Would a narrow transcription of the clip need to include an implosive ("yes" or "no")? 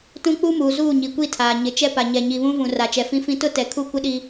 yes